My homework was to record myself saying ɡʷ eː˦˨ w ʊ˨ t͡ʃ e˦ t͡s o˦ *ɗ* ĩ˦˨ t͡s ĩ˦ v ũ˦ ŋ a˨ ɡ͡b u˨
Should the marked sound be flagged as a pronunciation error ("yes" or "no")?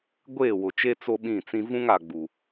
yes